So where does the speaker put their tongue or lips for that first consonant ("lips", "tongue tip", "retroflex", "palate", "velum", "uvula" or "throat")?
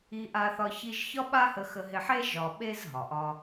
throat